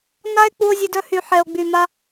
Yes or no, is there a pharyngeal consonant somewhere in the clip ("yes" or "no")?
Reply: yes